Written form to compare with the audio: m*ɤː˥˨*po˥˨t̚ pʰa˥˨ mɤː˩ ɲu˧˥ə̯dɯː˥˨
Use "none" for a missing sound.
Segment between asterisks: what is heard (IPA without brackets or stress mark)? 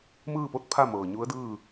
ɯː˥˨